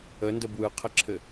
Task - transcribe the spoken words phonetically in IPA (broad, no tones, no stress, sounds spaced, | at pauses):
ə n d ə b w ɯ qʰ ɘ ǁʰ ɘ